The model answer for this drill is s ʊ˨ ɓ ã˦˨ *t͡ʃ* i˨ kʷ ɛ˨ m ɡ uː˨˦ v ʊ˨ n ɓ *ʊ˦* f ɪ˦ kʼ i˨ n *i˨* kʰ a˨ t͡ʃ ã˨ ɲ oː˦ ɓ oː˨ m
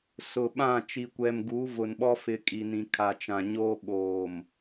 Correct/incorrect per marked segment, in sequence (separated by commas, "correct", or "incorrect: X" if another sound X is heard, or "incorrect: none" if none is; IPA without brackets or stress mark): correct, incorrect: ɔ˦, incorrect: ĩ˨